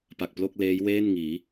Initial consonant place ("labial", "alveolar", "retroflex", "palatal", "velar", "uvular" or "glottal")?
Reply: labial